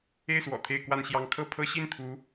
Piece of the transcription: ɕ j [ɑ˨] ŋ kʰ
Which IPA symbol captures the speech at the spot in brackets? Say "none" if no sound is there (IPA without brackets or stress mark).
ɑ˥